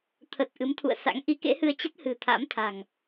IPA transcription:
t̪ʰ ə˨˩ t̚ ʔ ɨ˨˦ m t̪ʰ ṵ˧˨ ə̯ s a̰˧˥ ŋ ʔ i˨˦ k ḛ˧˥ h ɨ˧ ə̯ t͡ɕ ə˦˥ t̚ h ɨ̤˨˩ t̪ʰ a̰˧˥ m t̪ʰ a̤˨˩ ŋ

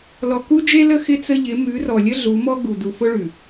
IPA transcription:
l ɔ˨ k u˦ d͡ʒ e˦ l ə˦ x ɪ˦ t͡s ə˦ ʎ ɪ˨˦ m ʉ˨˦ r ɔ˨ lʲ ə˦ ɮ u˨˦ m ɔ˦ ɡ u˨ d u˨ f ʊ˦ ɭ ʉ˨

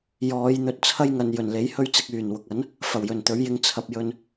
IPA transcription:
j ɔː˨˧ j n̪ ɵ˧ t̚ t͡sʰ ɐ˥ j ŋ ɐ˨ n j ɵ˨˩ n l e˨˥ j h ɵ˥ ɥ t͡s ɪ˧ k̚ yː˨˩ n w ʊ˨ k̚ ɐ˨˥ n | f ɐ˨˩ w j ɵ˨˩ n t̪ ɵ˨˥ ɥ j ɪ˧ ŋ t͡sʰ ɐ˨ p̚ j ɵ˧ n

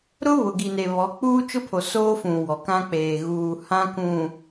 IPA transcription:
ɾ ʊ˦ β ʊ˨ ɡ i˨ n e˨ β ɔ˨˦ k͡p uː˦ t͡ʃ ʊ˦ pʰ o˨ s oː˦ f ũ˨ w ɔ˨ k ã˦ k͡p eː˨ ɣ uː˨ h ã˦ k ũ˨

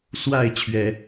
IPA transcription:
s w a˥˩ ɪ̯ t͡ɕʰ ɥ ɛ˨˩˦

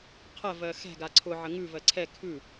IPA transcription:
qʰ ɜ v ɜ x ɛ̤ ɡ a ǀʰ ʊ ʕ ə ŋ ʉ v ɜ ǀʰ ɛ kʰ ʉ

